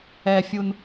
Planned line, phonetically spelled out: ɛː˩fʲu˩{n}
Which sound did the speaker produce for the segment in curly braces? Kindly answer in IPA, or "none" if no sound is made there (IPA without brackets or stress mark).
n